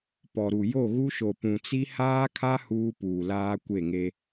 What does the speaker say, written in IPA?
p ɔ˨ ɾ u˨ j o˦˨ ɣ u˦ ʃ o˨ p ũ˨ t͡s i˦ h aː˦ kʰ a˦ h uː˦ p uː˨ l aː˦ kʷ e˦˨ ŋ e˦

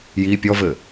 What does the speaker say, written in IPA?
j i pʲ ɔ v ɘ

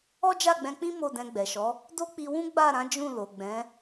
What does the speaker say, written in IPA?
ɔ˦ d͡ʒ a˦˨ ɡ͡b ɛ̃˧ k͡p ĩ˦ m o˦˨ d ɛ̃˧ ɡ͡b ɛ˨ ʃ ɔ˨˦ | d o˦ k͡p i˧ w ũ˦ ɡ͡b a˦˨ ɾ ã˨˦ d͡ʒ ũ˦˨ l o˨ ɡ͡b ɛ̃˨˦

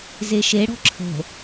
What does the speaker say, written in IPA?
z e ʃ e ɽ ɔ̤ ǁʰ ə̤

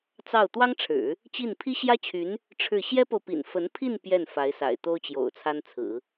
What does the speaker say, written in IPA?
t͡s ɑ˥˩ ʊ̯ t̪ w ɑ˥ ŋ ʈ͡ʂʰ ɻ̩˨˩˦ | t͡ɕ i˥˩ n pʰ i˥ ɕ j ä˥ t͡ɕʰ y˧˥ n | ʈ͡ʂʰ ɻ̩˥˩ ɕ j ɛ˥ p o˨ ʊ̯ p ḭ˨˩ n f ə˧˥ n pʰ i˥˧ n p j ɛ˥˩ n f a˧˥ ɪ̯ s a̰˨˩ ɪ̯ t̪ o˥ ʊ̯ t͡ɕ j o̰˨˩ ʊ̯ t͡sʰ a˥ n t͡sʰ ɹ̩˨˩˦

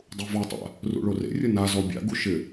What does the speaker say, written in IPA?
dˤ u v ɔ tˤ a̰ | r ṵ ɭ o r ḛ rʲ ʊ n a z ɔ bʲ a̰ ɡ u ʃ ɪ

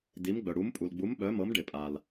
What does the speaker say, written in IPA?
d i˩˧ m ɡ͡b œ˩ ɽ u˩˧ m pʼ u˩ l ɡ͡b u˩˧ m ɓ œ˩˧ m ɤ˩˧ m ɖ ɪ˩ pʼ a˩ l

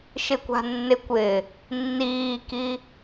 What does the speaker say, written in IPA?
ʃ ɪ kʷ a̤ nː ɪ kʷ ɪː | nː iː k i

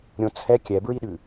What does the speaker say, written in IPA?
ɾʲ õ t͡sʰ ɛ kʲ ɛ b ɹ i ɗ ʉ

